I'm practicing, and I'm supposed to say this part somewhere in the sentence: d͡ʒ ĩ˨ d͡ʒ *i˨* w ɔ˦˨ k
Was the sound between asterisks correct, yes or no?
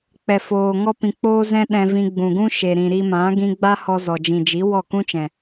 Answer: no